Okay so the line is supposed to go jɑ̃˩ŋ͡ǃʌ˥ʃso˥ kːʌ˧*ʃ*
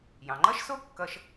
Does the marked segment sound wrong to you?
no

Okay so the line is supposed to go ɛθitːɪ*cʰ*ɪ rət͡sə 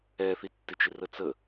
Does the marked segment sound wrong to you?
yes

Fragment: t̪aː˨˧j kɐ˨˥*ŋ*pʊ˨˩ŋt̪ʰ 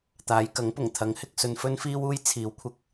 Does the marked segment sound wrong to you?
no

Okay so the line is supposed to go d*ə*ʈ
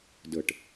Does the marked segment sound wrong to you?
no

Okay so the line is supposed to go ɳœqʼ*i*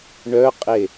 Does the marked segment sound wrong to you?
yes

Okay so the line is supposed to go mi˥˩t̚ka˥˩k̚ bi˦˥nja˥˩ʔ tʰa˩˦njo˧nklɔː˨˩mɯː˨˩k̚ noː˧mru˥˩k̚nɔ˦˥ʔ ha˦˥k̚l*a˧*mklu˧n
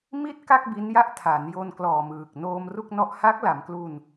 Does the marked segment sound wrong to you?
yes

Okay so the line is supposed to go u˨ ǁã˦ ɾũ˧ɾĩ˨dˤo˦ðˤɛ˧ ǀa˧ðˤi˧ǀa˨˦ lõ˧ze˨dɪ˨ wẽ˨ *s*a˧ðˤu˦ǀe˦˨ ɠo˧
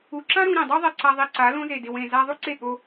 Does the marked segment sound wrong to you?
yes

